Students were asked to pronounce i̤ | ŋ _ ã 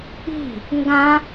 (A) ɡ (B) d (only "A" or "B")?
A